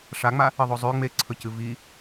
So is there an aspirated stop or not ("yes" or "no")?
yes